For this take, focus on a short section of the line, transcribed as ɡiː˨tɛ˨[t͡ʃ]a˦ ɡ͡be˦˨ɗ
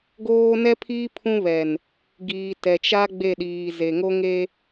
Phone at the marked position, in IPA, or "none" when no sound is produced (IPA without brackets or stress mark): t͡ʃ